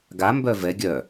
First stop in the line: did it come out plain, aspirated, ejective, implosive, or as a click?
plain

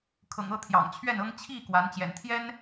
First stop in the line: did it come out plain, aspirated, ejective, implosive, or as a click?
aspirated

